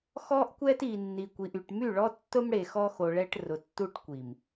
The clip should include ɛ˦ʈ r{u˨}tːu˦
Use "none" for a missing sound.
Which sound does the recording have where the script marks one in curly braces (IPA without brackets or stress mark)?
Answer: ʊ˨